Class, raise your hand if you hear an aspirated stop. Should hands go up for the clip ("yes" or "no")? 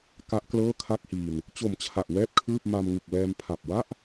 yes